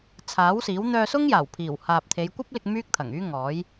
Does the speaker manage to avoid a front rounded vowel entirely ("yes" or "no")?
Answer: no